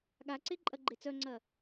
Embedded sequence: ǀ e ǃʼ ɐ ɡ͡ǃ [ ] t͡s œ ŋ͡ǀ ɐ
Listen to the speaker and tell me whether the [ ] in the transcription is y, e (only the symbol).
e